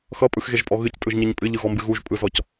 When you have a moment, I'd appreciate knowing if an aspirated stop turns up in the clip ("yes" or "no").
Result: no